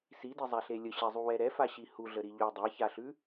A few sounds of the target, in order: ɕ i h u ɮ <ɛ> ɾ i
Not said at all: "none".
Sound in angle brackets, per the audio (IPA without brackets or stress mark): ə